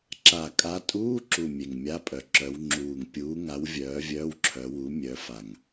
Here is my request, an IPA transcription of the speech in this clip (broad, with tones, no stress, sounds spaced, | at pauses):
ǁ a˨˩ kʼ a˨˦ tʼ uː˧˥˧ ǁ u˨˩ mʲ e˨˩ ŋ mʲ a˧˥˧ pʼ œ˨˩ ǁ œ˨˦ w ŋ͡ǁ uː˨˩ ŋ pʲ uː˨˦ ŋ a˨˦ w vʲ œː˨˦ vʲ œː˧˥˧ w ǁʰ œ˨˦ w u˨˦ mʲ œ˨˦ f a˨˩ ŋ